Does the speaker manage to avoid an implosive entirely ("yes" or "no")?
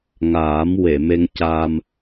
yes